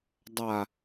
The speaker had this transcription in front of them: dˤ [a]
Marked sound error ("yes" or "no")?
no